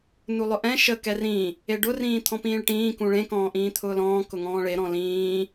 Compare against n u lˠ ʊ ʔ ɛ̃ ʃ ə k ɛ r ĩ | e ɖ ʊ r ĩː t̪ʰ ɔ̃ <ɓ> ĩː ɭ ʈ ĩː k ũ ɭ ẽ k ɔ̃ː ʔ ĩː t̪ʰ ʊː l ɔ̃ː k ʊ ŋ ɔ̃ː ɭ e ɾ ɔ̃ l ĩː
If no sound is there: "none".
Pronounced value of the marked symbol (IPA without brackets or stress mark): p